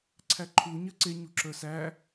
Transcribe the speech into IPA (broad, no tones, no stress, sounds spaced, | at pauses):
ǀʰ æ ǃʰ u ɲ ɜ ǀ e ɲ u ǁ ə˞ s æ